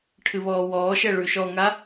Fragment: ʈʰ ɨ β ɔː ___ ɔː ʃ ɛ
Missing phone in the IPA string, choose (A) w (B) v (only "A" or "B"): A